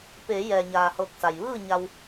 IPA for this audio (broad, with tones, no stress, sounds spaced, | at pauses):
p eː˩˧ j ɛː˩ ɲ aː˩ h ɤː˧˩ k̚ s a˩ j ʋ ɯː˥˨ ɲ a˧ w